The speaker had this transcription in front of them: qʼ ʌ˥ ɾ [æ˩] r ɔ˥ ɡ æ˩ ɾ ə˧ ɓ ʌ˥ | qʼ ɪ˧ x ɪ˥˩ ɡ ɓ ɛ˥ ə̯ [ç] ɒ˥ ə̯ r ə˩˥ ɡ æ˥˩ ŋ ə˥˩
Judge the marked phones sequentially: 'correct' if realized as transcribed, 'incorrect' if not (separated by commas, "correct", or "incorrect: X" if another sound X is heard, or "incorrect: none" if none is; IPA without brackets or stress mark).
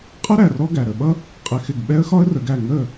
correct, incorrect: x